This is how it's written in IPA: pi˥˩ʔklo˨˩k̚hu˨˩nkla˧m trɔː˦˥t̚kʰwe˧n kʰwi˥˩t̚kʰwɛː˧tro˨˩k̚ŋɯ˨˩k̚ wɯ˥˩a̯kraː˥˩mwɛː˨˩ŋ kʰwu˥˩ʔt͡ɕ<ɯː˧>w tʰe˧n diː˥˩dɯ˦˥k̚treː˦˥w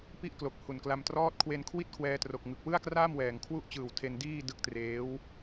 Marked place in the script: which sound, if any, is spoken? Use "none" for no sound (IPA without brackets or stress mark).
ɯː˨˩